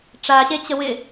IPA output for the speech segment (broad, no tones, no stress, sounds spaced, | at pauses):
ʈ͡ʂ a ɕ e t͡ɕ ə w ɪ